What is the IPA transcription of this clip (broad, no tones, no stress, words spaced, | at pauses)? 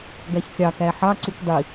ɡæçkʲɑ kæħɑ ǀukdˤi